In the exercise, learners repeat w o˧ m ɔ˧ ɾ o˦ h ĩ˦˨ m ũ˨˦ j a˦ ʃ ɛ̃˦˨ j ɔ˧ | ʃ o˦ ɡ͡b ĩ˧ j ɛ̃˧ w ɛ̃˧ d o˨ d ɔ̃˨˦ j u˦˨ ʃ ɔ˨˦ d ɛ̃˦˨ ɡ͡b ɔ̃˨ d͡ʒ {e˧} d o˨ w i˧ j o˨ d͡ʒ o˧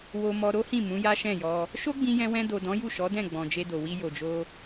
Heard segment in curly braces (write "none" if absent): e˧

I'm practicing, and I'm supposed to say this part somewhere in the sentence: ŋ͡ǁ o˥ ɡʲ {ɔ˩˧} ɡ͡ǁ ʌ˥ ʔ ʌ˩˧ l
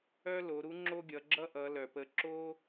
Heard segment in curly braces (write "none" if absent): ʌ˩˧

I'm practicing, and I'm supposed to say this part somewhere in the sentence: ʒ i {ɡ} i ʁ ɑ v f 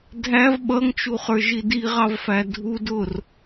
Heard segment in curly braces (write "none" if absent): d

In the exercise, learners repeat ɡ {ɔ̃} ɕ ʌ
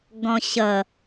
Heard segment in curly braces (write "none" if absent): ɔ̃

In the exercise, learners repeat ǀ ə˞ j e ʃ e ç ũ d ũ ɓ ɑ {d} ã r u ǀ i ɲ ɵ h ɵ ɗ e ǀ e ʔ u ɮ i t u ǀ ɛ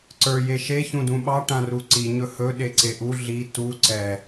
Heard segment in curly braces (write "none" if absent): ʈ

